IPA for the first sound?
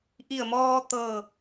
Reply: ʔ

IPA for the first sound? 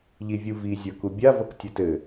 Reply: ʎ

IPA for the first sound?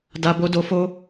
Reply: d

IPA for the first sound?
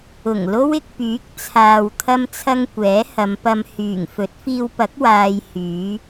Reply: ʊ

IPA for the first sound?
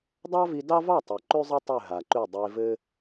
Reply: dˤ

